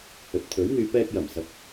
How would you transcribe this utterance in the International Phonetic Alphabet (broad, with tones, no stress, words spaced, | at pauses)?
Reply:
hɵ˨t̚t̪ʰɵ˨˥ɥn̪yː˧ pɛː˧k̚jɐ˨˩msɐ˨p̚